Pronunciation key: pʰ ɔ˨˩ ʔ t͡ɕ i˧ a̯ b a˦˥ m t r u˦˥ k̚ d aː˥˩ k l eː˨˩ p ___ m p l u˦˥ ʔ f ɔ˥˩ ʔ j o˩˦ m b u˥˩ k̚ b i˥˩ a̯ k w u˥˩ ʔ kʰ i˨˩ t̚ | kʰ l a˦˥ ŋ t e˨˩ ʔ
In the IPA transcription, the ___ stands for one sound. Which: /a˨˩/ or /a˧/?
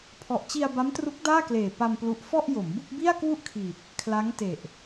a˧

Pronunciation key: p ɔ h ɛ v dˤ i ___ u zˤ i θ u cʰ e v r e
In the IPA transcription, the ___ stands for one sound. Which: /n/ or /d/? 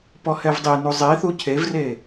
n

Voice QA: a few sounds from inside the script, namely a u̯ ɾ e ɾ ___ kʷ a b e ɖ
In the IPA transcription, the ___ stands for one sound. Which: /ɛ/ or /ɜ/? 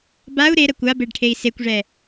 ɜ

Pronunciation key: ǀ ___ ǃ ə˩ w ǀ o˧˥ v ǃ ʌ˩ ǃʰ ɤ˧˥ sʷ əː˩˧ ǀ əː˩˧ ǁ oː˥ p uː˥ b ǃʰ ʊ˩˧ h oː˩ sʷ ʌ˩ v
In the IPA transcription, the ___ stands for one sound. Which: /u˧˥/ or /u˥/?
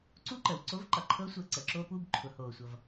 u˥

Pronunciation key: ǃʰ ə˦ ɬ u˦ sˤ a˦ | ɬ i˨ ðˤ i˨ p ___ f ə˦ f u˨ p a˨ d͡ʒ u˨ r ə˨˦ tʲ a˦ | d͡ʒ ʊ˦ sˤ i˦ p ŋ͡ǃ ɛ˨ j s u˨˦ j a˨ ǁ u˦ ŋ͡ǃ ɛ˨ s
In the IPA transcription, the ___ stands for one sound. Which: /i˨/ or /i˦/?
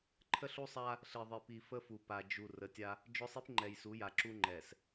i˨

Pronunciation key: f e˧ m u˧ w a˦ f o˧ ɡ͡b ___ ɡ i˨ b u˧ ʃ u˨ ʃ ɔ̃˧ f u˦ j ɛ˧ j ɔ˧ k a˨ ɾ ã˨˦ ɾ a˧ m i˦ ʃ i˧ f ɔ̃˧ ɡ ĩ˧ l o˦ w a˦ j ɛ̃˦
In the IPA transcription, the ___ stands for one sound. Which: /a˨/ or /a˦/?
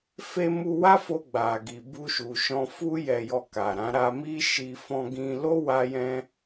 a˨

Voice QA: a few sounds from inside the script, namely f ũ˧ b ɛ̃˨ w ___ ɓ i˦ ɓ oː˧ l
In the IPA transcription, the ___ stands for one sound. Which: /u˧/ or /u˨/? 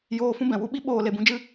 u˧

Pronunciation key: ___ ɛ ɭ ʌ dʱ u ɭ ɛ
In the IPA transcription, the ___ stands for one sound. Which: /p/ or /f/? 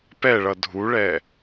p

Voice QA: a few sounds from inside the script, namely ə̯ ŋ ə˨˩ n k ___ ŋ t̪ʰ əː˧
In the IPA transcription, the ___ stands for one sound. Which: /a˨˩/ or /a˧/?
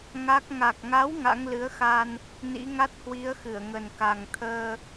a˨˩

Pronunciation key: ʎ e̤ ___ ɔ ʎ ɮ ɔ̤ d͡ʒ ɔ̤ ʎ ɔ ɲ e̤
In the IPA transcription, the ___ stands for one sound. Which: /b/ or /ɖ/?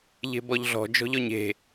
b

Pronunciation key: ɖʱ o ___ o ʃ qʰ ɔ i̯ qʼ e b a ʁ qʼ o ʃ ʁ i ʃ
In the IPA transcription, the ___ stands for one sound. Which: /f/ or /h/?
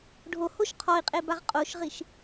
h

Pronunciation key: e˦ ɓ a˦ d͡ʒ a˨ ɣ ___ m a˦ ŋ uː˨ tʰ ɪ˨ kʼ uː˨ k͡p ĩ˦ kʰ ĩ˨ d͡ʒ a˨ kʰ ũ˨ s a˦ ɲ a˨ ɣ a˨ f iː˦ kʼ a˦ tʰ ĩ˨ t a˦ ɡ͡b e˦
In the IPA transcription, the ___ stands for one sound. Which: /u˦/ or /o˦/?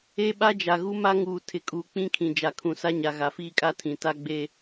u˦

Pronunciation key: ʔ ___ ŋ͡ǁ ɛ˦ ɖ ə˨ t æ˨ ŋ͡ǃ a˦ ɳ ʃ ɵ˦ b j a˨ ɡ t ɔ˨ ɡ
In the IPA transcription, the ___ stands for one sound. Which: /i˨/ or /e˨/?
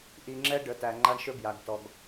i˨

